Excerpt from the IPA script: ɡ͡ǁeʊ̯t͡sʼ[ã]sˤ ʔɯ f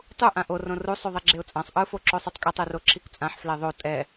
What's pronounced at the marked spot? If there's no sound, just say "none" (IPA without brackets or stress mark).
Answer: ã